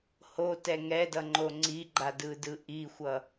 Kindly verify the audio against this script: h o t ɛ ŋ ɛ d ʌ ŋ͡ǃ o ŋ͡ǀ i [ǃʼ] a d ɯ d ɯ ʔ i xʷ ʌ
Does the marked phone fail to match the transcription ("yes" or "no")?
yes